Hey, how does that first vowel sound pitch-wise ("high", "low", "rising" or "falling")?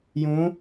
rising